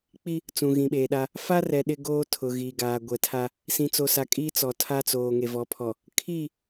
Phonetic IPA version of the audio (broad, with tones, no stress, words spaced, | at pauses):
k͡pi˦ | t͡sũ˨ ɣĩ˨ɓeː˨ɗa˦ | fa˦rɛ˨ ɗɪ˦ɡoː˦ tʰʊ˨ɣiː˨ɡaː˨ ɡʷɛ˨tʰa˦ | sĩ˨t͡so˨sa˨ kʼiː˦t͡sɔ˨tʰa˦t͡soː˨ ŋe˨vɔ˨˦pʰɔ˨ | kʰiː˦˨